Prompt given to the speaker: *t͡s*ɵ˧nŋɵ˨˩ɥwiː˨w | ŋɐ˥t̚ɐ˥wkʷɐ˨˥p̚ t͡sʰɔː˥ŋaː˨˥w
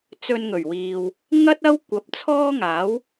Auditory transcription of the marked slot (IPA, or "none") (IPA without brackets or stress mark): t͡s